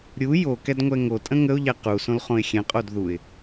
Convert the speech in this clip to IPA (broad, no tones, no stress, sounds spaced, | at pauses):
ɾʲ u j o k ɛ d ŋʷ ɛ ŋ o tʼ ə̃ ŋ ə ʊ̯ ʎ ɛ q u s õ l χ õ ɪ̯ xʲ ɛ̃ qʼ o d ð u ɪ̯